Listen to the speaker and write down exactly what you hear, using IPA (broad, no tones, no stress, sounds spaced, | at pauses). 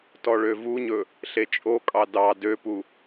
t ɔ ɭ ø v u ɲ ɵ | ɬ e t͡ʃʼ o kʼ ɑ d ɑ d ø p u